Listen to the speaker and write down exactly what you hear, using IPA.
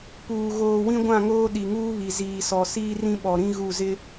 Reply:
p uː˨ ɣ oː˨ w ĩ˦ ɡʷ ã˦˨ ŋ oː˦ ɗ i˨ ŋ uː˦ β i˨ z iː˨ s ɔ˨ s iː˦ r ĩ˦ ɓ ɔ˨ ɾ ĩ˦ ɣ u˦˨ z ɪ˦

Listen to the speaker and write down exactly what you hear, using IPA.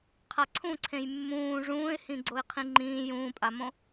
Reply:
qʰ a ǀʰ ũ ǀʰ ẽ j mː ũː ʐ ũː ɪ̯ h ĩ ɡ͡ǀ o ɪ̯ qʰ ĩ ŋ͡ǃ ĩː j ũː pʼ a m õ

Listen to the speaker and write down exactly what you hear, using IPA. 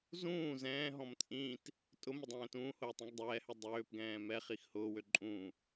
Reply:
z ũː z ɛ̃ː ɦ ɔ̃ m t͡sʼ ĩ t | tʼ ʊ m ʊ dˤ ɛ̃ː t ũː h ʊː tˤ ĩ ɡ dˤ ɛː h ø dˤ øː p ɡ ɛ̃ː m ɛ χ i x h ʊː w ø ǃʼ ũ

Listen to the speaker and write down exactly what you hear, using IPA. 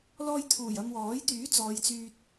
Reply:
l ɔː˧ j t̪ʰ uː˨˩ j ɐ˧ m w ɔː˨˥ j t̪ yː˨˥ t͡s ɔː˨˧ j t͡s yː˧ t̚

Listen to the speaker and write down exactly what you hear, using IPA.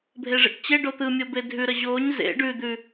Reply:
bʱ e ʐ ḛ ʈ t͡ɕ e ɖ o t̪ ɯ mʲ o b e dʱ ʉ ɾ ə ʑ o ɲ z ḛ ɖ ʉ d̪ ʉ

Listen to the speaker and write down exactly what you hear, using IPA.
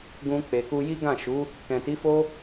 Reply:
ɡ ũ˧ k͡p e˨ k u˧ j i˦ ɡ ã˦˨ ʃ u˨˦ | k ɛ̃˨ t i˨˦ f o˦

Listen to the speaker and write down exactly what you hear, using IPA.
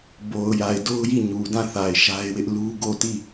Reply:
b o˨ ʊ̯ j a˨ ɪ̯ d o˦ ʊ̯ j i˦˨ ɲ u˨ d ã˦˨ θ a˨ ɪ̯ ʃ a˦ ɪ̯ w ɪ˦ ʔ l u˦ ɡ o˦˨ t i˦˨

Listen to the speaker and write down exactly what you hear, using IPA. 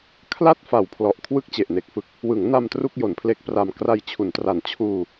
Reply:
kʰ l a˥˩ t̚ f a˨˩ w pʰ l ɔ˨˩ ʔ kʰ w ɯ˥˩ k̚ t͡ɕ e˨˩ ʔ n e˨˩ k̚ f ɯ˦˥ k̚ | w ɯ˩˦ ŋ n a˧ m t r u˥˩ k̚ j o˩˦ n pʰ l e˦˥ k̚ p r a˧ m k r a˧ j t͡ɕʰ u˩˦ n t r a˨˩ n t͡ɕʰ uː˧

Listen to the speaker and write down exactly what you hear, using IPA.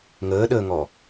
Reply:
ŋ əː ɗ əː ŋ ɔ

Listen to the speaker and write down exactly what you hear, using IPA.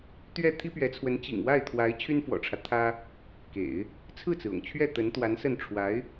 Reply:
t̪ ɥ ɛ˥˩ t̪ʰ i˥ p ɥ ɛ˧˥ t͡sʰ w ə˧˥ n t͡ɕ ḭ˨˩ ŋ w a˥˩ ɪ̯ t̪ʰ w a˧˥ ɪ̯ t͡ɕʰ y˥ n f w ɔ̰˨˩ ʈ͡ʂʰ ä˦ t̪ʰ ä˥ | k ḛ˨˩˦ ɪ̯ | t͡sʰ ɹ̩˥˩ t͡s ɹ̩˩ ʊ̰˨˩ ŋ t͡ɕʰ ɥ ɛ˥˩ t̪ ə˧˥ n t̪ w a˧˥ n s ə˥˩ n ʈ͡ʂʰ w a˧˥ ɪ̯

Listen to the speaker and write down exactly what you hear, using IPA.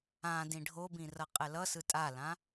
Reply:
ã d ĩ ɖʱ o b ĩ r ʌ qʼ ɛ l ʌ s ɯ tʼ a l ã

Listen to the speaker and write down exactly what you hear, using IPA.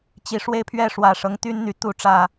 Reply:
t͡ɕ i˨˦ ʂ w e˦ ɪ̯ pʰ ɥ ɛ˥˨ ʂ w ä˨˩ ʂ ɤ˦ ŋ t̪ y˦ n n̪ y˨˦ t̪ u˨˦ ʈ͡ʂ ä˨˩

